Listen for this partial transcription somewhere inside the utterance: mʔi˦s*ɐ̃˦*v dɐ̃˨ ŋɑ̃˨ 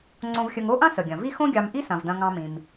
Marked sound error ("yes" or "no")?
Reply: yes